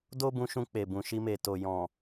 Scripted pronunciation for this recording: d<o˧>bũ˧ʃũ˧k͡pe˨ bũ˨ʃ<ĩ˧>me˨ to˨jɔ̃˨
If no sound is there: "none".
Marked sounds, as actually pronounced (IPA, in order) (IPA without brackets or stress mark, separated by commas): o˦, i˧